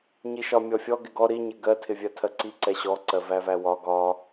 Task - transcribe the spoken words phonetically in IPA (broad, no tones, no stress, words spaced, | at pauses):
ɲiʃɒmʲɔfʲɔ ɡɪɡɔ ɾiɲɪ ɡɜtʰɪvʲɜ tʰɜǀi ǀɛɕɔǀɜ vævæwɒ ɡɒ